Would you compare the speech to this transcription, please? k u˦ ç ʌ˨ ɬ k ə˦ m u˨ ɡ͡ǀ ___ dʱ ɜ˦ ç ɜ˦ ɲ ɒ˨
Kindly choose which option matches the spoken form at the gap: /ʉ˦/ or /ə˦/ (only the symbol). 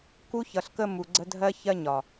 ə˦